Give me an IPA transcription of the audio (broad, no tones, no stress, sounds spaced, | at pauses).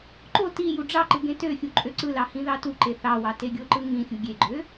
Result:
ǃ o t i j u ɖ͡ʐ ɑ ǃ ɯ ɡ ẽ t ø xʲ u ǃʼ ø ǀ ɯ l ɑ h ĩ ð ɑ t u ǃ e θ ɑ w ɑ t e ɡʲ o ǃ ɯ ŋ ĩ xʲ u ɡʲ e ɡ͡ǃ ø